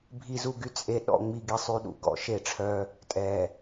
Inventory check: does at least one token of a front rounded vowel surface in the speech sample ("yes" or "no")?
yes